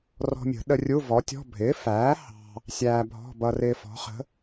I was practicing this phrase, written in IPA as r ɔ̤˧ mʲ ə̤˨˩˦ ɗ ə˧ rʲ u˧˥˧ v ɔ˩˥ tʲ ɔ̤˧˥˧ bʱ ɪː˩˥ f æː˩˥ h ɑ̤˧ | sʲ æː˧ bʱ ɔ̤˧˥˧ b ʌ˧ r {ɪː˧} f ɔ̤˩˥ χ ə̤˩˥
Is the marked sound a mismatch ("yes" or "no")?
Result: no